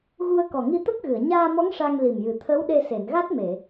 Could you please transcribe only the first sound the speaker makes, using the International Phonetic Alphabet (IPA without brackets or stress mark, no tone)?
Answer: ɣ